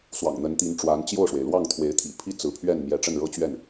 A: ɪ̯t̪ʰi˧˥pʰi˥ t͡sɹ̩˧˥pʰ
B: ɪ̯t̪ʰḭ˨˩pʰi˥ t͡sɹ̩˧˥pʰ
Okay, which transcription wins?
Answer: B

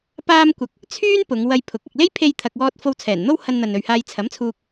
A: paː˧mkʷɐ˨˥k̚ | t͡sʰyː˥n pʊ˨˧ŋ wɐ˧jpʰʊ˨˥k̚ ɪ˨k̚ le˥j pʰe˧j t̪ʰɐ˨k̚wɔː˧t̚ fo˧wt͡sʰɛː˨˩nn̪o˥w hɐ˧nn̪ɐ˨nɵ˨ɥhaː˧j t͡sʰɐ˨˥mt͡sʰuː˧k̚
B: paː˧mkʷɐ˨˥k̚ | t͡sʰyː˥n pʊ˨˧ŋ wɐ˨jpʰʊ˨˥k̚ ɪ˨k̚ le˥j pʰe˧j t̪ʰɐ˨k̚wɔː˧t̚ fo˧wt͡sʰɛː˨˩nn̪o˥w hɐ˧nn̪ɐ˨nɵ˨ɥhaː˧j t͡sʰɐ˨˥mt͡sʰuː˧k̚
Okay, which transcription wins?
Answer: A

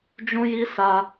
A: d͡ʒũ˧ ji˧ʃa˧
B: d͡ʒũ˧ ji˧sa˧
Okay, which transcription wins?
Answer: B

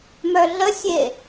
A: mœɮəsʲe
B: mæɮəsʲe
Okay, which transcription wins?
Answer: A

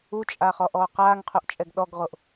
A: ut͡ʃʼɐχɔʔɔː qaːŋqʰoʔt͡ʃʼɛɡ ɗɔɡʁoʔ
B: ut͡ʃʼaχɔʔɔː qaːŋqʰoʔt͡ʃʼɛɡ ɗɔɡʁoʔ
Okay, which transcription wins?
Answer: B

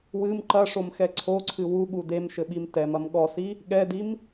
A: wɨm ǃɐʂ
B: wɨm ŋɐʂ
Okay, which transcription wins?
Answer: A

